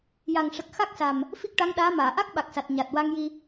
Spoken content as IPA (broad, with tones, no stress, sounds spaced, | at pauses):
j a˨˩ ŋ ʂ ə˨˩ k̚ x a˦˥ k̚ s a˨˩ m | f i˦˥ k̚ ʈ a˧˥ ŋ ɗ aː˧˥ m aː˨˩˨ ʔ a˦˥ k̚ ɓ a˨˩ k̚ s a˨˩ t̚ ɲ a˨˩ t̚ w a˧ ŋ j i˧